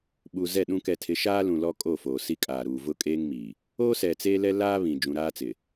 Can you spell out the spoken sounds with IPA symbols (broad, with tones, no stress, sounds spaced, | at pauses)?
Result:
ɓ u˨ z ɛ˦˨ ɗ ũ˦ k ɛ˨ tʰ ɪ˨˦ ʃ aː˦ l ũ˨ l ɔ˦ kʼ o˦˨ f oː˨ s i˦ kʼ aː˨ ɾ uː˨ v ʊ˦ kʼ eː˦ ŋ m iː˨ | oː˦ s ɛ˨ t͡s eː˦ l ɛ˦ l aː˦ β ĩ˨ d͡ʒ ũ˨ ɾ aː˦ t͡s ɪ˨